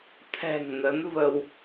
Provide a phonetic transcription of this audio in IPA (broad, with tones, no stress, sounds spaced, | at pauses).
t̪ʰ ɛ̤˨˩ ŋ n ə˨˦ n v ə˧ w